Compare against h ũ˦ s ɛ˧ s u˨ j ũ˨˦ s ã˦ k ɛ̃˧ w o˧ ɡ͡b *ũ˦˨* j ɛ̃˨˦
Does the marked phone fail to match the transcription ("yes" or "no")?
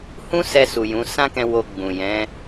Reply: yes